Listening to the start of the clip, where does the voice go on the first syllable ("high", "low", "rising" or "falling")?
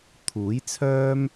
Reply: rising